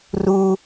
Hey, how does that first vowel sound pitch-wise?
high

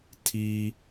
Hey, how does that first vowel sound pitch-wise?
high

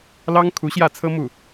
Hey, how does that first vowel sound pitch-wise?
high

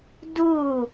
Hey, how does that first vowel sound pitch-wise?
falling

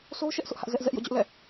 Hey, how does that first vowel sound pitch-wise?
high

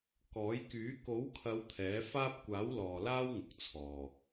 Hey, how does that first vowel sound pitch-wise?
rising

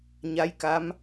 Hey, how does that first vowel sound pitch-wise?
rising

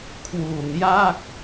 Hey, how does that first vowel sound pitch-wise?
low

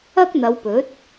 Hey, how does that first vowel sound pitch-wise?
high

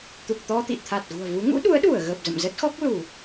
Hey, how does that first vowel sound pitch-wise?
low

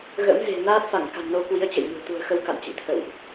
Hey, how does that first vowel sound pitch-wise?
rising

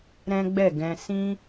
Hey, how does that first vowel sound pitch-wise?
high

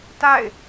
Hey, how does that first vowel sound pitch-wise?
falling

